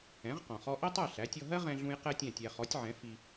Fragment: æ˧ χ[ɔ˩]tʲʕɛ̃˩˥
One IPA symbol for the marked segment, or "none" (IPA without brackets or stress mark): ɔ˩˥